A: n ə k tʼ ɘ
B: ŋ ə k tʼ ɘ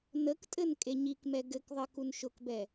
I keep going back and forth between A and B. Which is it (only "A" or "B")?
A